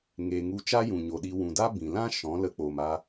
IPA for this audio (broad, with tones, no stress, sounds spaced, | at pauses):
ŋ e˨ ŋ u˧ t͡ʃ a˦ j ũ˨ ɲ o˨ ɗ i˧ w ũ˨ d a˦ b ĩ˨ l ã˦ ʃ ɔ̃˨˦ l ə˧ k͡p o˨ m a˧